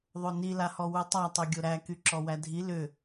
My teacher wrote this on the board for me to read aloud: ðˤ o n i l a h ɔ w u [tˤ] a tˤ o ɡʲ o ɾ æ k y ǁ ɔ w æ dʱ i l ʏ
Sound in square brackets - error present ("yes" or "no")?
no